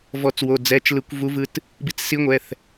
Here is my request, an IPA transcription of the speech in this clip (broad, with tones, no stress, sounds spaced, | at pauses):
v ɔ˨˩˦ t͡s w o˩˧˩ d͡z ɛ˩˧˩ t͡ʃ l ɯ˨˩˦ kʷ v u˧˥ v ɯ˧ t | b i˧ t͡s s i˧˥ ŋʷ ɛ˩˧˩ θ